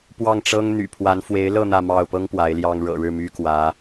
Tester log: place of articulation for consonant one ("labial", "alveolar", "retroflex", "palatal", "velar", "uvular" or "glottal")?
labial